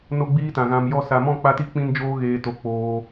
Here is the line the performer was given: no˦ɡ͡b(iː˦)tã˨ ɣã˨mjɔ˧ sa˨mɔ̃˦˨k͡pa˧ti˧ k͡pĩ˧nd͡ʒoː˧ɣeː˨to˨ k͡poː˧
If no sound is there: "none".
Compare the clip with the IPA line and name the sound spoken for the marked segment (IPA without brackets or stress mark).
iː˦